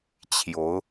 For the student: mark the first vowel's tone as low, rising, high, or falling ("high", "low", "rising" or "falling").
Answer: rising